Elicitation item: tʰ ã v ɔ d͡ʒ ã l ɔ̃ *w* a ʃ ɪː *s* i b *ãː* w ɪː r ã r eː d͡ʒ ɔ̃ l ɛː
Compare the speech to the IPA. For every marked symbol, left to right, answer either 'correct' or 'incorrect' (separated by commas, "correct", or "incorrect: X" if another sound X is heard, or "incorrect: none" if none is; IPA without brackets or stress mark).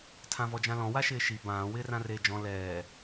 correct, incorrect: ʃ, correct